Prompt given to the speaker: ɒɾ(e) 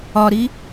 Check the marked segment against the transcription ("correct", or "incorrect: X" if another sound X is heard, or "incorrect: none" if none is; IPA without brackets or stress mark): incorrect: i